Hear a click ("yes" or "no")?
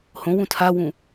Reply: no